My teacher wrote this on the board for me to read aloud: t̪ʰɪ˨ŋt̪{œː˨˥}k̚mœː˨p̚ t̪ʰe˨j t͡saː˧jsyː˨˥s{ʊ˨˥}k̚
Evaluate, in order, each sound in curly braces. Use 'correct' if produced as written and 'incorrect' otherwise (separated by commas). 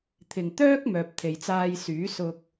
incorrect, incorrect